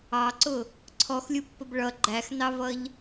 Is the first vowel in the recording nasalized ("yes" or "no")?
no